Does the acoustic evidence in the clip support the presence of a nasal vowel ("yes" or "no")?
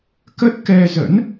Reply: no